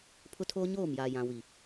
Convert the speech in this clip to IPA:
pʰ ʊ˦ tʰ oː˦ ɲ oː˦˨ m j aː˨ j ã˨ w i˨

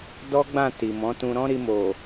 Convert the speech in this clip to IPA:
d ɔ˦ ɡ͡b ã˦˨ t i˨ m ɔ̃˨˦ t ũ˧ ɾ ɔ̃˦ ɾ i˧ m o˨

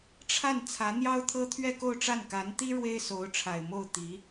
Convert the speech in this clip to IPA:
ʈ͡ʂʰ a˥˩ n t͡sʰ ä˧˥ n̪ j ɑ˥ ʊ̯ t̪ʰ ɤ˥ t̪ʰ ɥ ɛ˥˧ k o˥˧ ʊ̯ ʈ͡ʂ a˥˩ n k a˧˥ n t̪ i˥ ɻ w e˥ ɪ̯ s o˧˥ ʊ̯ ʈ͡ʂʰ a˨˩ ɪ̯ m o˥˩ ʊ̯ t̪ i˧˥

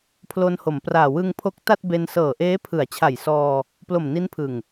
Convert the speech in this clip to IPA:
pʰ l o˧ n h o˩˦ m p r aː˨˩ w ɯ˧ ŋ pʰ o˦˥ k̚ t a˥˩ t̚ b e˧ n s ɤː˨˩ ʔ eː˦˥ pʰ ɯ˩˦ a̯ t͡ɕʰ a˨˩ j s ɔː˧ | p l o˨˩ m n i˦˥ n pʰ ɯ˨˩ ŋ

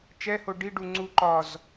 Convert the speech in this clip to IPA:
t͡ʃ ɛ h o ɖ i ɖ u ŋ͡ǀ u ǃ ɒ z

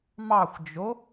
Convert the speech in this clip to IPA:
m ɑ xʷ d͡ʒ o

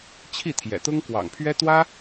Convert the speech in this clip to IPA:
t͡ɕʰ i˥˨ t̪ʰ j ɛ̰˨˩ t̪ ʊ˦ ŋ k w ɑ̰˨˩ ŋ pʰ ɥ ɛ˦ t̪ w ä˦

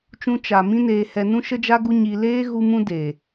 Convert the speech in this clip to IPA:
t͡ʃ ũ˧ t͡ʃ a˨ m ĩ˦ n eː˧ h ɛ˧ n ũ˦ ʃ ə˦ d͡ʒ a˦ ɡ u˦ ɲ i˧ l eː˦ ɣ u˧ m ũ˧ d eː˨

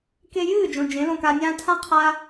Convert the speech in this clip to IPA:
k e˧ j ɨː˦˨ d͡ʒ õ˨ d͡ʒ ẽ˨˦ l õ˧ k a˧ nʲ ãː˦ tʰ ã˦ qʰ a˦

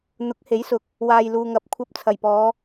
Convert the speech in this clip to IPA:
n̪ ʊ˨˥ k̚ h e˨˥ j s ʊ˨ k̚ | w aː˨ j l uː˨ ŋ ɐ˨˥ p̚ kʷʰ ɐ˧ p̚ t͡sʰ ɐ˨˩ j p ɔː˨˧

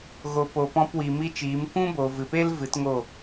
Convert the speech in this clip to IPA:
ɣ o˧ p o˧ p ɔ̃˧ p w i˨ m i˦ t͡ʃ iː˨˦ m kʷ ũ˦ b o˨ v ɨ˨ p e˦ l v ɨ˨˦ t ŋ o˦˨

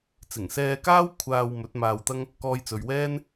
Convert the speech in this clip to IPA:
t͡s ɪ˨˩ ŋ s ɛː˧ k aː˥ w kʷʰ aː˧ w m ɵ˨˥ t̚ m aː˧ w t̪ ɐ˥ ŋ | k ɔː˧ j t͡s ɵ˨ ɥ w ɛː˥ n

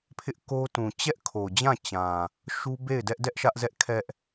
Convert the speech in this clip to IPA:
pʰ ɪ˦ ʔ k o˦ t ũ˨ t͡ɕ ɛ˦ ʔ kʰ o˨ d͡ʑ ã˦˨ t͡ɕ ã˨ | ʃ u˦ b e˦˨ ɪ̯ d ɛ˦ ʔ d ɛ˦ ʔ ʃ ä˦ ʔ z ɛ˦ ʔ kʰ ɛ˦ ʔ

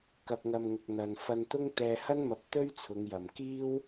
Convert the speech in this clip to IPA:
k ɐ˨ p̚ ŋ ɐ˨ m ŋ ʊ˨ k̚ n̪ ɐ˨ n f ɐ˧ n t̪ ʊ˥ ŋ t̪ ɛː˧ h ɐ˥ n m ɐ˨˥ p̚ t̪ ɵ˥ ɥ t͡sʰ ʊ˨˧ ŋ j ɐ˨ m k iː˥ w

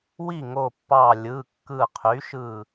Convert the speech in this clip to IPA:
w i˥˩ ŋ o˧˩ pː ɑ˧˩ lʲ ɯ˩˧˩ kː ɯ˧˩ qʰ y˩˥ ʃ ɯ˥˩

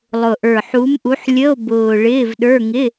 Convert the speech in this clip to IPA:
lˠ ʊ˨˩ ʔ ə˞˨˩ ħ u˨˦ m ʔ u˨˦ ħ lʲ ə˧˥˧ o̯ b ʊː˨˩ ɭ ɪː˧˥˧ v ɗ ə˞˧˥˧ ŋ ɪ˧˥˧

